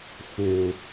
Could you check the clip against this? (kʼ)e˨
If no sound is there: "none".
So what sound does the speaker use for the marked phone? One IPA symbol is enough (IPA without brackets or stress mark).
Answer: x